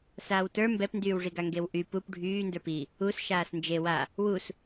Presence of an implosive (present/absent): absent